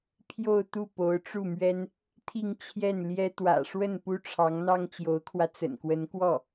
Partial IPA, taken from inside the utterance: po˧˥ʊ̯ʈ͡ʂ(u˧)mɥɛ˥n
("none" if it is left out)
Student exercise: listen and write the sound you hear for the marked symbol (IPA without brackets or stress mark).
u˥˩